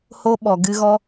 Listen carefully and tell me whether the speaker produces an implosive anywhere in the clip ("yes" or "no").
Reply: yes